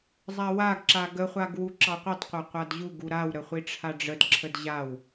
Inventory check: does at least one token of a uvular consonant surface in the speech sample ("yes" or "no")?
yes